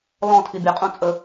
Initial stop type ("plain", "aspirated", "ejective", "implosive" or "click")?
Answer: aspirated